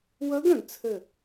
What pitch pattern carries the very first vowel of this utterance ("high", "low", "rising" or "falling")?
rising